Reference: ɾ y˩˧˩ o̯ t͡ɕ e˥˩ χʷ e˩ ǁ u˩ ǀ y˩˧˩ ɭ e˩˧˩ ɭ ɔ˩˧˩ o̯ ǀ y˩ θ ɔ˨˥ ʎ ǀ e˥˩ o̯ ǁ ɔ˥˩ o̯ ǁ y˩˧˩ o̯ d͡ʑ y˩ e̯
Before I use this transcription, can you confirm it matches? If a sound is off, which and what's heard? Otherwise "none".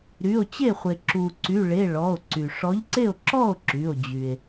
θ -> ʂ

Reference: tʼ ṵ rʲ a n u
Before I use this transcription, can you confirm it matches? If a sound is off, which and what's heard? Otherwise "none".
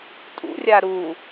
n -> ɾ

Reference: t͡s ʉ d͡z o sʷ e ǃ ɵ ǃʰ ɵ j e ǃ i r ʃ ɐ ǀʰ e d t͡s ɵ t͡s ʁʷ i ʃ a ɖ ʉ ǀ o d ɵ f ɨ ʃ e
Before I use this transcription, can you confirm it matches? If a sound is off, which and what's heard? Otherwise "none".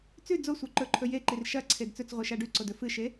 none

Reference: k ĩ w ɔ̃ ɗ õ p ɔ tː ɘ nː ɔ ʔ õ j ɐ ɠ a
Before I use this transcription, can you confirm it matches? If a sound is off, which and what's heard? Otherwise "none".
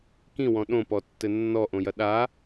ɠ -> ɗ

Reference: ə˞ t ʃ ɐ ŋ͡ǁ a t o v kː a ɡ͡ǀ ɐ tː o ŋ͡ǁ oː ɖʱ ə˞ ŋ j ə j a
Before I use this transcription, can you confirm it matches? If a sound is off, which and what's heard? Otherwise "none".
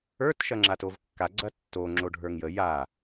oː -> o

